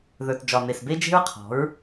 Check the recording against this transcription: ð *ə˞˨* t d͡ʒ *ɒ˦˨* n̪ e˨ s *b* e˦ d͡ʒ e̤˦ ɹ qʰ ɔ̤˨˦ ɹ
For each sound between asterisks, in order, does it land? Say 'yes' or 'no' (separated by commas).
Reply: yes, no, yes